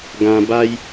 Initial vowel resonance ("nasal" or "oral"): nasal